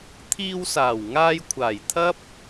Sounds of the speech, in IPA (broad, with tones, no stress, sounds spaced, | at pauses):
t̪ʰ iː˧ w s aː˨˩ w ŋ aː˧ j kʷʰ aː˨˩ j t̪ʰ ɐ˥ p̚